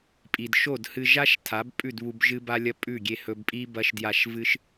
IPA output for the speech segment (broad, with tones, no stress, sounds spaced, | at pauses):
pʼ i˨ d ʃ o˦˨ d h ɨ˧ ʒ a˦ ʃ tʰ a˨˦ b pʼ ʉ˦˨ d β u˧ b ʒ ɨ˦ b a˦ lʲ ɐ˦ pʼ ʉ˦˨ ɡʲ e˧ h ɵ˧ b pʼ i˦ b ɐ˦ ʃ d j a˦˨ ʃ v ɨ˦ ʃ